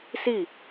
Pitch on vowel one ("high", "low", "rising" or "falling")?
falling